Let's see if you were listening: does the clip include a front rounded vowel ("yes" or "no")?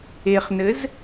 no